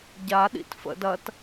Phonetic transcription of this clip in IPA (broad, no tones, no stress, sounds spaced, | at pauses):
ɟ a ɗ ḭ t f ə̰ d ɐ t